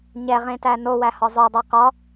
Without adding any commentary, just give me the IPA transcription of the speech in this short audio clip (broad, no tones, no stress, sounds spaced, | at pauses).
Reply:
ɲ ɛ ʁ ẽ t æ n o w æ h ɒ zˤ o dˤ ɛ q ɒ